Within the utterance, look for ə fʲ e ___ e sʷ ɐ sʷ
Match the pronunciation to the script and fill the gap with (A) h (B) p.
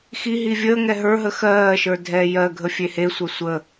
A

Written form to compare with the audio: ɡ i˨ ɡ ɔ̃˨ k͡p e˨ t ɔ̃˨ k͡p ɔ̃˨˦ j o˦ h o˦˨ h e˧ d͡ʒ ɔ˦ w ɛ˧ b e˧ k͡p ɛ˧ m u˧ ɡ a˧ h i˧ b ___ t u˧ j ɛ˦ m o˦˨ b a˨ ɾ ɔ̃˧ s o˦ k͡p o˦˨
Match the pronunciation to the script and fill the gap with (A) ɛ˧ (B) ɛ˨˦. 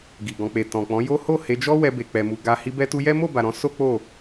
A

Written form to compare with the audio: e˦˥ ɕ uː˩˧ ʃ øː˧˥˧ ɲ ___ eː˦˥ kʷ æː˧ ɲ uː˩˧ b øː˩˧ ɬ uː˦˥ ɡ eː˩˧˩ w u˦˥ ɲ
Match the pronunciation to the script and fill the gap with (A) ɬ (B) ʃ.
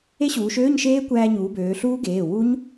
B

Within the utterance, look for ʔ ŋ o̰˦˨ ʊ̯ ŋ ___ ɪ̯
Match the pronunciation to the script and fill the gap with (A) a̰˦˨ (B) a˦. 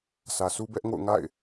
A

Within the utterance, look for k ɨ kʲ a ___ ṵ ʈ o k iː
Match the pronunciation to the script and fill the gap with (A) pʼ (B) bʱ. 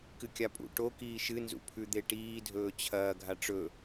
A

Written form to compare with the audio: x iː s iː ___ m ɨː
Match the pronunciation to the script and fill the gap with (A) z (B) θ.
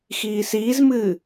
A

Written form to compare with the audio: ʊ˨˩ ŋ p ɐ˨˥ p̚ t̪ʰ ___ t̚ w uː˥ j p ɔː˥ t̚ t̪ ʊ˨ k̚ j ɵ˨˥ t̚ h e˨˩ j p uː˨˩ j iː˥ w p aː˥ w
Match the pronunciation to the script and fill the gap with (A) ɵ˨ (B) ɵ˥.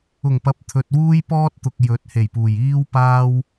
A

